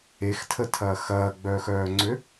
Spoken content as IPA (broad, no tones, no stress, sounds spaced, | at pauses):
e x tʰ ə tʰ ɐː x ɐː ɡ͡b œː x œː ŋ͡ǀ ø